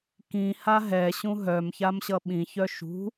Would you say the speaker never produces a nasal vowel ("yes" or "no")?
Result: no